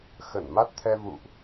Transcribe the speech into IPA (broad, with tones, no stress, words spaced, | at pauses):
xə˧˩nma˦˥t̚t̪ʰɛ˧ vṵ˧˨ʔ